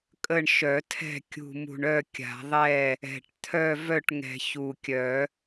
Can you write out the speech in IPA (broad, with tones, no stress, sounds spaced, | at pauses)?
kʼ ə˥˨ ɳ ʃ œ˨˩˦ tʰ ɛ̤˥˨ kʲ ṳ˨˩ m ṳ˨˩ ɳ œ˥˨ kʲ a̤˨˩˦ ðˤ ɛ˥˨ | ɛ̤˨˩ ʈ t̪ʰ œ˥˨ v œ˥˨ ʈ ŋ ɛ̤˨˩ ç u˨˩ kʲ œ˨˩˦